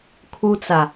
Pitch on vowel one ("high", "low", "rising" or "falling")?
high